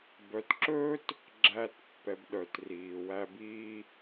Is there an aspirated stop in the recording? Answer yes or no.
no